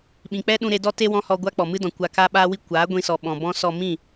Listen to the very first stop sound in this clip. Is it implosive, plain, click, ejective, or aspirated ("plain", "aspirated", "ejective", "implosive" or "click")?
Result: implosive